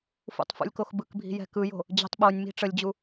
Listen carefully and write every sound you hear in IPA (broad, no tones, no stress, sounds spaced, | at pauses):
f ṵ tˤ f ṵ lʲ k o x b ɯ k bʱ i̤ j ɛ̤ k ɯ j o̤ | d͡ʑ i̤ tˤ ɓ o nʲ m i̤ ʈ͡ʂ ə lʲ d͡ʑ u